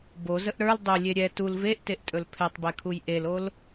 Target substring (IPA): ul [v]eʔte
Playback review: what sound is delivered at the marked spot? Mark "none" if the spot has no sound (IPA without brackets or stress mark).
v